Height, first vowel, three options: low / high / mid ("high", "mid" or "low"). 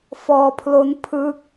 mid